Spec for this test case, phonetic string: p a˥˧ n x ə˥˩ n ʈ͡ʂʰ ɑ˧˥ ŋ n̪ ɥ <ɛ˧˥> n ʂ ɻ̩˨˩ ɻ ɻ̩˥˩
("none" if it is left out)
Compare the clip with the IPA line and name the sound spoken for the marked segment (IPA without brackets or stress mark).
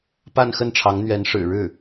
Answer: ɛ˧˥